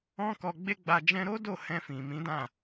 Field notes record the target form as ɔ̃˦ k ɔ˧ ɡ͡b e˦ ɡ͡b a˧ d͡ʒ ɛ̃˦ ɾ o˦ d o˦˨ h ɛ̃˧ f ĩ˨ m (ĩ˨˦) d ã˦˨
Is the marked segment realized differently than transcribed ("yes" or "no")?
no